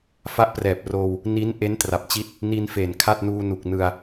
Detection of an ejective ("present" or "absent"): absent